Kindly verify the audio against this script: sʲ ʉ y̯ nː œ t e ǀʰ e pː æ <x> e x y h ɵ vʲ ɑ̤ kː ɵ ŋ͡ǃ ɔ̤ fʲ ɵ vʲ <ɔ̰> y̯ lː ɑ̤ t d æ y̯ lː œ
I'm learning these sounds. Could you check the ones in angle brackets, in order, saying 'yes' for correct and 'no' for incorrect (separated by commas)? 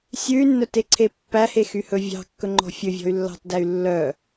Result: no, no